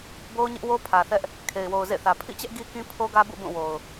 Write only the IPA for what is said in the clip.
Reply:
bo˦ʊ̯ɲɪ˦ʔwo˦ pʰä˨θɛ˦ʔ | kʰe˨ɪ̯wo˨ʊ̯zḛ˦˨θä˨ pʰḭ˦˨t͡ɕɛ˦ʔ ɡi˦kĩ˦ pʰo˦ɡä˦bṵ˦˨ bũ˦˨wo˨ʊ̯

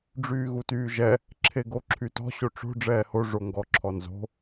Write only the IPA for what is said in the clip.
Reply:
ɖ͡ʐyːɣutyːʒɛ | ǁʰeɡoǁʰytɔ̤ ɕoʈ͡ʂo̤ ɖ͡ʐɛːho ʐoŋɡɔ ǁʰɔnzo̤

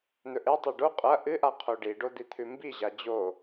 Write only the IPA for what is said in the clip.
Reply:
n̪ɵʔetˤɐ ɖo qʼɐ ʔɨʔa qʰoɖiɖo d̪it̪ʰʉmbiʑa d͡ʑo

